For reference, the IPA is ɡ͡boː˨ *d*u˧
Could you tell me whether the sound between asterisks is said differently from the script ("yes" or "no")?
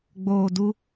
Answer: no